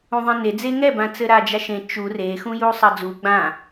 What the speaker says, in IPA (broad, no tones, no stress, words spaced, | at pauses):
ũðˤẽne d͡zeŋɛbãt͡sɘ ɾad͡ʒaʃẽ t͡ʃu rexũju sˤɐd͡zu ɡ͡bã